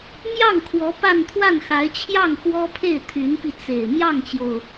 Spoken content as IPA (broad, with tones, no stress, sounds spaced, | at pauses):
m j ɑ˥˩ ŋ kʰ w ɔ˧˥ p a˥˧ n t̪ʰ w a˥˩ n x a˧˥ ɪ̯ t͡ɕʰ j ɑ˥˩ ŋ x w ɔ˥ pʰ e˥˩ ɪ̯ t̪ʰ y˧˥ n p i˧ t͡s e˨˩ ɪ̯ m j ɑ˥˩ ŋ t͡ɕ j o˩ ʊ̯